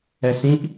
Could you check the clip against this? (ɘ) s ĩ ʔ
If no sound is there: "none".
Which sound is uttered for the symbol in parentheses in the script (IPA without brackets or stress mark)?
ɛ